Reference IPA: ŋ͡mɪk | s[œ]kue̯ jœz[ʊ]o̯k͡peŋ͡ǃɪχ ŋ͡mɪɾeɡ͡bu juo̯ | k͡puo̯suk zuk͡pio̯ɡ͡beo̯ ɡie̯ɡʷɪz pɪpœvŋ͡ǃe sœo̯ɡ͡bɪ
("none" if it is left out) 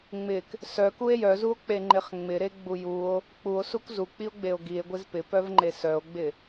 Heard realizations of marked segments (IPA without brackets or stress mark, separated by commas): œ, u